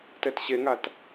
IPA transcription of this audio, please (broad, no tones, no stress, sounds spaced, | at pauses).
t ɛ t ɕ e ŋ a t